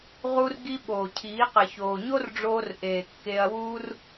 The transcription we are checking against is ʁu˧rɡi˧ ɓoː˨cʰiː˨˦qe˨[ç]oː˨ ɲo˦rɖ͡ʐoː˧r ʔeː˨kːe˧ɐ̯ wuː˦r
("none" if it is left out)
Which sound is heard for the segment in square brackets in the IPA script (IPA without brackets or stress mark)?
ç